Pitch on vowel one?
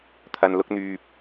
low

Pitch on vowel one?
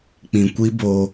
low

